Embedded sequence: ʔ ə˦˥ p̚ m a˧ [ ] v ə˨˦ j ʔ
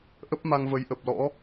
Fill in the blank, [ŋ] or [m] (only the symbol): ŋ